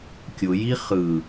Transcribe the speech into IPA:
kʲ ʊ j i χ ɯ

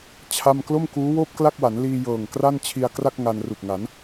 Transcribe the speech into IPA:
t͡ɕʰ a˥˩ m k l o˥˩ m k uː˦˥ w oː˥˩ p̚ k l a˥˩ k̚ w a˩˦ n l iː˧ j ɤː˨˩ ŋ k r a˥˩ n t͡ɕʰ i˧ a̯ k r a˥˩ k̚ ŋ a˧ n r u˨˩ k̚ ŋ a˩˦ n

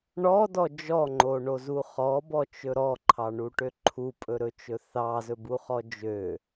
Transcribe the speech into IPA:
ɳ ɔ d ɔ d͡ʒ ɔ ŋ͡ǃ o ɳ o z u χ ɔ b ɔ t͡ʃ ɵ ɾ ɔ ǃʰ ɑ ɳ u ʈ ø ǃʰ u pʼ ɵ ɾ ɵ t͡ʃ ɵ θ ɑ z ɵ b u χ ɔ d͡ʒ ø

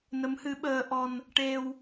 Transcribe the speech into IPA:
n ə˧˥ m h ɨ˧˥ ɓ əː˧ ʔ ɔ˧ n | ʈ e˧ w

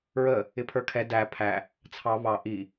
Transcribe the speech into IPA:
ɹ ə | ɪ pʰ ə˞ kʰ ɛ d æ pʰ æ | t͡sʰ ɑ β ɑ ʔ i

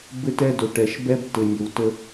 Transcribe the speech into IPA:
b ɘ˦ t ɛ˦ d ɵ˨ ʈ ɛ˨ ʃ b ɛ˦ b t ɘ˨ nʲ ə˨ w t ə˦

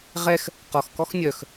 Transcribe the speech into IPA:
ʁ ɛ x | q ɔ x k ɔ x nʲ œ x

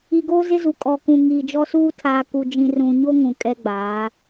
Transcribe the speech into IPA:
i˨ ɡ oː˦ z ɪ˦ z u˨ kʼ ɔ˨ k ũ˨ ŋ iː˨ d͡ʒ ɔ˦ s uː˦ tʰ aː˨ k u˨ d͡ʒ ĩ˨ r ũ˨ ɲ o˦ ŋ ũ˨ kʼ ɛ˦ ɡ͡b aː˨˦

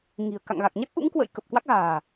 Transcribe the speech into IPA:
ŋ i̤˨˩ ə̯ k a̰˧˨ ŋ ɣ a˨˩ k̚ ɲ a˦˥ k̚ ʔ ṵ˧˥ ŋ k w ə̰˧˨ j k ə˨˩ p̚ k w a˦˥ k̚ ɣ a̤ː˨˩

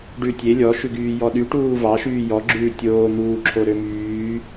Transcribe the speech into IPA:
ɖ ʉ tʲ e lʲ ɔ ʃ ʉ ɡ yː j ɔ ɗ y ʈ uː v ɑ ʃ yː j ɔ ɡ͡ǁ ʉː tʲ oː n̪ uː ǁʰ o ɾ ø m yː

